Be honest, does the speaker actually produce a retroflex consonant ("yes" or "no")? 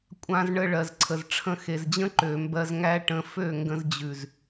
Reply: yes